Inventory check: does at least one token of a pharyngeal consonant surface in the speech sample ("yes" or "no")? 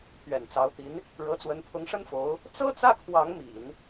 no